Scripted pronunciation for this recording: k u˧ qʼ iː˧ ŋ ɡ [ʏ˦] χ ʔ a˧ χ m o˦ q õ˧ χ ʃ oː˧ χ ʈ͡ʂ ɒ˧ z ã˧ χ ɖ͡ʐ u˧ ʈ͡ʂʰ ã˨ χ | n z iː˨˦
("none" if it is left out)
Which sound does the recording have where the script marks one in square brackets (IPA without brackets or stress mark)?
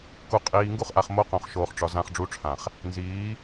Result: u˦